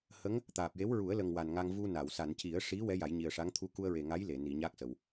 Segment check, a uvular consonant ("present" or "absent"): absent